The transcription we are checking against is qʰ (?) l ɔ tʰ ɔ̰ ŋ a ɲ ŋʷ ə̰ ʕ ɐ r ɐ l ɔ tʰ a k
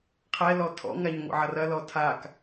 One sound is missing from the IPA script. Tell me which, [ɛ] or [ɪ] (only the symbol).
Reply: ɛ